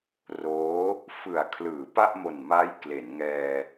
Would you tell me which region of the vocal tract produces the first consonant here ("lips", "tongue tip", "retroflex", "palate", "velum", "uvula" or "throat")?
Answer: tongue tip